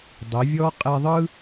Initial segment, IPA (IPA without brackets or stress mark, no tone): dˤ